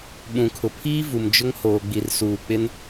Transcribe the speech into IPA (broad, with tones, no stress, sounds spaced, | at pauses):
ɓ ũ˨ kʰ ʊ˨ pʰ iː˦ v u˨ m d͡ʒ ʊ˦ ŋ h oː˨ ɡ͡b i˨ r s uː˨ k͡p ɪ˦ n